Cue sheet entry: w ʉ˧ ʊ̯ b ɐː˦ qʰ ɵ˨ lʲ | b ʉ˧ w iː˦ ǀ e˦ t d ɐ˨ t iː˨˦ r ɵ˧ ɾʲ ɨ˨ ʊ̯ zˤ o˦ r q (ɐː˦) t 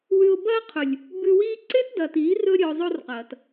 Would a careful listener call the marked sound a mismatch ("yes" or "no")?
yes